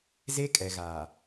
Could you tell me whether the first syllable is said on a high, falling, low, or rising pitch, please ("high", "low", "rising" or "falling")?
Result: high